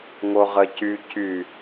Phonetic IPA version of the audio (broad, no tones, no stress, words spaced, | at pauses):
ŋoʁəcy cy